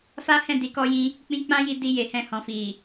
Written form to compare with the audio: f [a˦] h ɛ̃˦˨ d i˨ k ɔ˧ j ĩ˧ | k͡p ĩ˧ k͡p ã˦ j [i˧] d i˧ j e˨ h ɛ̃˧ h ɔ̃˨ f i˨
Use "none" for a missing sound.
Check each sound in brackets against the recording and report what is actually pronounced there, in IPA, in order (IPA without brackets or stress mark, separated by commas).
a˦, i˧